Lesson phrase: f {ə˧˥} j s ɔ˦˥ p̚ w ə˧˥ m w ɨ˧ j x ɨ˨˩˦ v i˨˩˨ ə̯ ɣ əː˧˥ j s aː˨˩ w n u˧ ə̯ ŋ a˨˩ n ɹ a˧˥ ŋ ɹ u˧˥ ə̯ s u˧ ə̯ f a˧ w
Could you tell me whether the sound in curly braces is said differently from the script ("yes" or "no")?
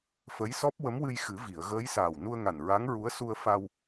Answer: no